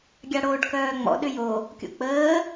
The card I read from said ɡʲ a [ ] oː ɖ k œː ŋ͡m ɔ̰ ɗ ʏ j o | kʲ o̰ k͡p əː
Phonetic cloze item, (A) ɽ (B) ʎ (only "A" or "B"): A